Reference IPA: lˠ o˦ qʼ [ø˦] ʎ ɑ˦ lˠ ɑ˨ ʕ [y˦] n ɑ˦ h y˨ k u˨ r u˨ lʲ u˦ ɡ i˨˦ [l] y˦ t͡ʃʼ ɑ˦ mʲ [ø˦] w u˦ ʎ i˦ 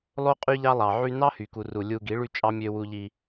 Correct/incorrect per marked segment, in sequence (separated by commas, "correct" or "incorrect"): incorrect, correct, incorrect, correct